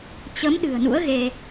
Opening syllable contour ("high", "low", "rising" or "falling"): rising